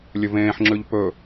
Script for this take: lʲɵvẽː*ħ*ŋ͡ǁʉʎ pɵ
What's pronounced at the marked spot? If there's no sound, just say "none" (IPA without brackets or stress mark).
ħ